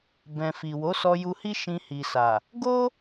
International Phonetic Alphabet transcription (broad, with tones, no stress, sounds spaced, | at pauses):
b ɛ̃˨ f i˨ w o˨˦ s ɔ˧ j u˧ h i˦ ʃ ĩ˧ h i˨ s a˨ | ɡ o˦